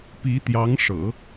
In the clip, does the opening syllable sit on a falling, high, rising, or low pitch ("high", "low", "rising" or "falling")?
rising